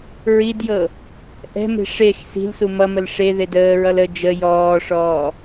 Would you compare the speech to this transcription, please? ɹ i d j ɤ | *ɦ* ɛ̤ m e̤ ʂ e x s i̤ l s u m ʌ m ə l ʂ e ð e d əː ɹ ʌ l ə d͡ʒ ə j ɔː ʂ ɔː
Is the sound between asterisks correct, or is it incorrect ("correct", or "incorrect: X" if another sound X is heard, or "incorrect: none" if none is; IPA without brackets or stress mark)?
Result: incorrect: ʔ